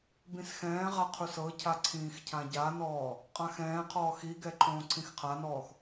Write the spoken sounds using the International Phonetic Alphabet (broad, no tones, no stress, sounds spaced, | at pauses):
b ĩ s x ɛ̃ː ʁ a qʰ u s ɤ cʰ a ǀʰ ĩː x cʰ ã ɟ a n ɔː | qʼ ã x ɛ̃ː qʰ ɔː x i ɡ ɛ ǃʰ õː ǀʰ ĩ x qʰ a n ɔː x